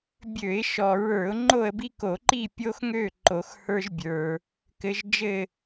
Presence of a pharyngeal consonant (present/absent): absent